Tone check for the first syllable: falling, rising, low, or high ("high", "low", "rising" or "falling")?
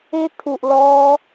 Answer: high